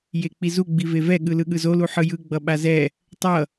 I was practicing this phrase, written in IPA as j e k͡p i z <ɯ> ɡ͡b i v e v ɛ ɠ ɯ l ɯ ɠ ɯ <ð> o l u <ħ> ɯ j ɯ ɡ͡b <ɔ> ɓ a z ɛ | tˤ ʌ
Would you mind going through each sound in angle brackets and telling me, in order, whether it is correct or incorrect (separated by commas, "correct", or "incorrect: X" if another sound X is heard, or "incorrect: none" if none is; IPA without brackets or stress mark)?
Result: incorrect: u, incorrect: z, correct, incorrect: ʌ